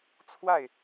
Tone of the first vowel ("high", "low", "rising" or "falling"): falling